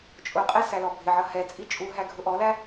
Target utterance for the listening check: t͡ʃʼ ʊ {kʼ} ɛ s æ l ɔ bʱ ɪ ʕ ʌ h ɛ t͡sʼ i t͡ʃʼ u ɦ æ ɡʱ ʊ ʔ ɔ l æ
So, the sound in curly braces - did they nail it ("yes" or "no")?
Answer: no